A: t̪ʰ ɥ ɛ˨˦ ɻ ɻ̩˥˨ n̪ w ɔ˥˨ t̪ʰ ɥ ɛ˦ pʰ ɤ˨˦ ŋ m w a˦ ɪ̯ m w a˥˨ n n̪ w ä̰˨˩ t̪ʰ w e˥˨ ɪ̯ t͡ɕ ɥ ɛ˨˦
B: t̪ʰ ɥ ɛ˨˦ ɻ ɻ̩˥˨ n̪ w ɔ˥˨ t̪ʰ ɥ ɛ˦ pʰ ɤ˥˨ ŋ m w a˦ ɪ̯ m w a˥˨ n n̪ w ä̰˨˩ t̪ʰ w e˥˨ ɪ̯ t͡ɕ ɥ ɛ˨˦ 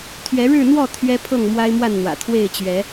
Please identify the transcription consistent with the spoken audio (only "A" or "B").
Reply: B